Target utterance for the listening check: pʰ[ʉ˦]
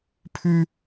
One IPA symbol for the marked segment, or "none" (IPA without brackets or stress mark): ʉ˦